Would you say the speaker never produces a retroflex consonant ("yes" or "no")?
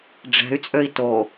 no